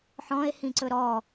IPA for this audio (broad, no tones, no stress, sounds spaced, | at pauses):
ħ ɔ̃ e̯ h ĩ ǀ ɵ ɾ ɔ